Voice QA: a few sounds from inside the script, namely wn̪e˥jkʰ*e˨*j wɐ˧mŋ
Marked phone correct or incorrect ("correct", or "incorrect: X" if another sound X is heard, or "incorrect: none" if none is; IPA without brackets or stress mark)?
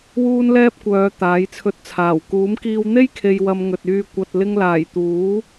correct